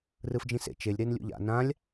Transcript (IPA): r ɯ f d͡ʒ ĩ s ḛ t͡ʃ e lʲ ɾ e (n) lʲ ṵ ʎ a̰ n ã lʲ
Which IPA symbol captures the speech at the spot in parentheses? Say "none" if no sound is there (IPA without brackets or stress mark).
n